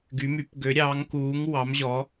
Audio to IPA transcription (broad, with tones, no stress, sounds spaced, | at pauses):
ɡ y˨˦ m y˨˦ p ɡ ø˨˦ ɾʲ ɑː˨˦ ŋ k uː˨˦ ŋ w ɑ˨˦ m ʑ ɔ˨˦